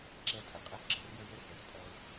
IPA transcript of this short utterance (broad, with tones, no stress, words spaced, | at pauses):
ǁɛ˦˨tʼə˨qʼɛ˦ ɡ͡ǁʌ˦r jə˦jə˦ rə˨rpʼʌ˧ʊ̯